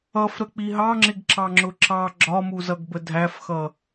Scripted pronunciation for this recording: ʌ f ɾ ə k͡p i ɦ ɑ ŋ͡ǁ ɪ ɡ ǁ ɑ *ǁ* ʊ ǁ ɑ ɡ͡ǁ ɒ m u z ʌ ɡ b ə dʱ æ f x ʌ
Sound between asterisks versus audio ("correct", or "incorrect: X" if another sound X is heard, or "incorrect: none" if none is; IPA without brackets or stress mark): incorrect: ŋ͡ǁ